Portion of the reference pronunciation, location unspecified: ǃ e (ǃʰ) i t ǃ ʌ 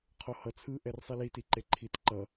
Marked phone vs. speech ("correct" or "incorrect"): correct